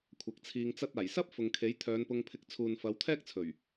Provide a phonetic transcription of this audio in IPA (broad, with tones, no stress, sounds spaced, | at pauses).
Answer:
kʷʰ ɐ˨˥ k̚ t͡sʰ iː˧ ŋ t͡s ɐ˧ t̚ aː˨˩ j s ɐ˥ p̚ f ʊ˨ ŋ kʰ e˨˥ j t̪ʰ œː˨˧ n p ʊ˧ ŋ pʰ ɪ˧ k̚ t͡sʰ uː˨ n f ɐ˨˧ w t̪ʰ ɛː˥ k̚ t͡sʰ ɵ˨˩ ɥ